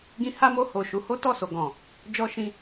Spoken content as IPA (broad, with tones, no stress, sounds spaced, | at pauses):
ɡ ĩ˧ h a˦ m o˧ h o˨ ʃ u˨˦ h o˦ t ɔ˦˨ s o˨ ɡ ɔ̃˨ | d͡ʒ ɔ˧ ʃ ĩ˧